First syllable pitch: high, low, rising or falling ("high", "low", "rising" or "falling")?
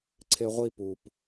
high